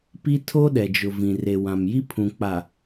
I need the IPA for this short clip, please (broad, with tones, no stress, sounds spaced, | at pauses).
p i˦ tʰ o˦ ɗ ɛ˨ d͡ʒ ʊ˨ v ĩ˨ r e˨ w ã˨ m j i˦ pʰ ũ˨ k͡p a˨